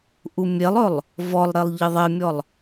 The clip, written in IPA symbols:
ʔ u mʲ e lˠ ɵ lˠ | v ɔ lˠ ɾ e lˠ ʎ ɪ ðˤ e mʲ ɔ lˠ

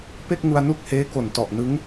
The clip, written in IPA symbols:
p e˥˩ k̚ ŋ u˧ a̯ n u˦˥ k̚ h eː˦˥ k o˨˩ n t ɔ˨˩ ʔ n ɯ˦˥ ŋ

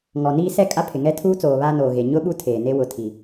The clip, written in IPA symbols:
ŋ ɔ˨ n iː˦ s ɛ˦ kʼ a˦ pʰ ɪ˨ ŋ ɛ˦ tʰ uː˦ t͡s oː˨ β aː˦ n oː˨ ɣ e˨ ɲ ʊ˦ ɓ u˦ tʰ eː˨ n e˦ w ʊ˨ tʰ i˨

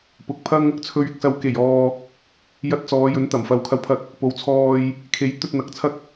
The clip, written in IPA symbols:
p ʊ˨˥ k̚ pʰ ɐ˥ ŋ | t͡sʰ ɵ˧ ɥ ɪ˨˥ k̚ s ɐ˧ w k e˨˩ j ɔː˨ | j ɐ˧ t̚ t͡s ɔː˨˧ j ɵ˨˥ n t̪ ɐ˨˩ m f ɐ˧ w kʰ ɐ˥ w pʰ ɐ˥ k̚ | p o˨˧ w t͡sʰ ɔː˧ j | kʰ e˨˧ j t̪ ɵ˧ t̚ n̪ ɐ˨˥ k̚ t͡sʰ ɐ˥ k̚

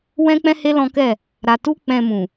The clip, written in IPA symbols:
w ɛ̃˦ k͡p ɛ̃˦ h e˦ l ɔ̃˦ k ɛ˦˨ | ɾ a˧ t u˦ k͡p ɛ̃˧ m ũ˨

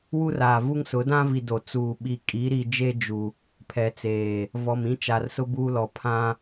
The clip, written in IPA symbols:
w u˦ r aː˨ v u˦ ŋ s ʊ˨˦ d ã˦ v i˨ d o˨ t͡s uː˨ ɓ i˨ kʼ i˨˦ ɾ i˨ d͡ʒ e˦ d͡ʒ u˨ | pʰ ɛ˨ t͡s eː˨ | v ɔ˨ m ĩ˦ t͡ʃ a˨ r s ʊ˦ b uː˦ l ɔ˨ pʰ ã˦

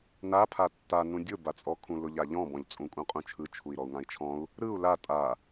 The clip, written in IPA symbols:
n a pʰ a tː a n ũ dʲ ʊ b a t͡sʼ ɔ kʰ ũ l ʊ ʎ a ʎ ɔ̃ b ɔ̃ ʎ t͡sʼ ũ kʼ ũ qʼ ũ t͡ʃʰ ɯ t͡ʃʰ u i̯ ɾ ɔ u̯ ŋ ã i̯ t͡ʃʰ ɔ̃ u̯ | ɾ ɯ u̯ l a tʼ a

